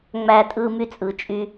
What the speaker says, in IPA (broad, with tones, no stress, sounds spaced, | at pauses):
ŋ͡m æ˦ tʼ ɯ˦ m y˦ t͡sʼ ɯ˨ t͡ʃʼ y˦